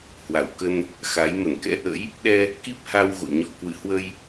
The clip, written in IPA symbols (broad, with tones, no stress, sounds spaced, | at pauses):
h w a˧˩ w k ə˧ n | x a˨˦ j m ə˧˩ n k ɛ̰˧˥ ʔ ə̰˧˥ j | ɗ ɛ˧ | k i˦˥ p̚ h a˧ w ɣ o̰˧˨ ɲ ɔ˧˩ k w ɨ̰˧˨ h w ə˧ j